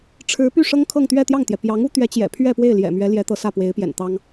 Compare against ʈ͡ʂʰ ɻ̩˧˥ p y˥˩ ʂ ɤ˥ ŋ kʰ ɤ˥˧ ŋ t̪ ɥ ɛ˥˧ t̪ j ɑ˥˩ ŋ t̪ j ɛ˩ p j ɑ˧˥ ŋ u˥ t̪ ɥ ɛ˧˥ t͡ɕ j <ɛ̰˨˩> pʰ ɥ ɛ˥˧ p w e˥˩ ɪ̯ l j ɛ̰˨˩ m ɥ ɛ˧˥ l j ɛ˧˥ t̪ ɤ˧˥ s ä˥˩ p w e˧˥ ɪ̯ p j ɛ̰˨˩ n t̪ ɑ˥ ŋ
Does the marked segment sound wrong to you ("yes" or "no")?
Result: no